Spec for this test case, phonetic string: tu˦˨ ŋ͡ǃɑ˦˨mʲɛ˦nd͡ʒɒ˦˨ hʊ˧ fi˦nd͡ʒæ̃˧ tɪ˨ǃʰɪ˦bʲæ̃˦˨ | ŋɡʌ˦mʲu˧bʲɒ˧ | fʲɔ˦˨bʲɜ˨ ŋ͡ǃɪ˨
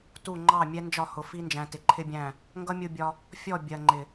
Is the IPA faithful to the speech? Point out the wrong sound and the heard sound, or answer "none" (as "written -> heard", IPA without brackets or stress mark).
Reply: none